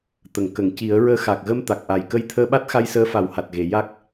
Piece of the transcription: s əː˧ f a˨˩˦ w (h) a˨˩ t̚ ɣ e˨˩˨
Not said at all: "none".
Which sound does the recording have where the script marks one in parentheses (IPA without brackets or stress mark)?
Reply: h